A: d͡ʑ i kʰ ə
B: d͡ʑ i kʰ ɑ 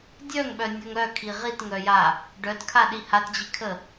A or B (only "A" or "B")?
A